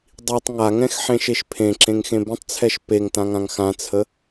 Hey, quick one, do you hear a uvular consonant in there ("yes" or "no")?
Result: no